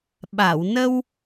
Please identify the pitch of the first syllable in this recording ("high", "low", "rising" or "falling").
low